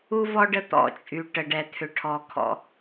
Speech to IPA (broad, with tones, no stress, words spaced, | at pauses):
u˦vɔ˦ ɖə˦ t̪ɔ̰˦t͡ʃʼy˨ ʈə˨ɖɛ˨t̪ʰʏ˨ ʈʰɔ˨ kʰɔ̰˦